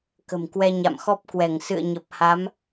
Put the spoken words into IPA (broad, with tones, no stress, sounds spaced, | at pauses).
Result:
k ə̤˨˩ m k w ɛ˧ ɲ a̰˧˨ m x ɔ˦˥ p̚ k w ɛ˧˩ ŋ s ɨ̰˧˨ ə̯ ɲ ə˨˩ p̚ h a˨˦ m